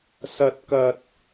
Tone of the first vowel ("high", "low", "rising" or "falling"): high